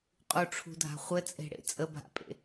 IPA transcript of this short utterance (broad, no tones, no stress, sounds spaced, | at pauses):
qʼ u ʈ͡ʂʰ ṳ dʱ a̤ χʷ ɘ t͡sʼ e̤ ɽ ḛ t͡sʼ ə bʱ a̰ pʼ ḛ